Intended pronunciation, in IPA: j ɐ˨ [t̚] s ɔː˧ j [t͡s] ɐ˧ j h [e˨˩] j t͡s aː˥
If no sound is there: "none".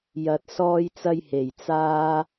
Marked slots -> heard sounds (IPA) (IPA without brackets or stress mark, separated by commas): t̚, t͡s, e˨˩